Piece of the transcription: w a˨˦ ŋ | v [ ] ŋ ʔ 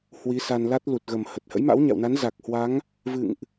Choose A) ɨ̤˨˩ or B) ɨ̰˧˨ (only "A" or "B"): B